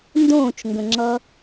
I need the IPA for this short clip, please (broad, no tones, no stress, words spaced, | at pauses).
ndõːt͡ʃŋɡə̃ŋ͡ǁʌ